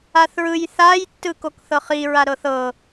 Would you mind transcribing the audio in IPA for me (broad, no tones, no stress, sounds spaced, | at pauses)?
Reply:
a θ ɹ ɯ j θ a j tː ɯ k o k θ ɤ χ i ɹ a ɾ ɤ θ ɤ